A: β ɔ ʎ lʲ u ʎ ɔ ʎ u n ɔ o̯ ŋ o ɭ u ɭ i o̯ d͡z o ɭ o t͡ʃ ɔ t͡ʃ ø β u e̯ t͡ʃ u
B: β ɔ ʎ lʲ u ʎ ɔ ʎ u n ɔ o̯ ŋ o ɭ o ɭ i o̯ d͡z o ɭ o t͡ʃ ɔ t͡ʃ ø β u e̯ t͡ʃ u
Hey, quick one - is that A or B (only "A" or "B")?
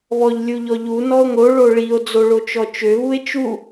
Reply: B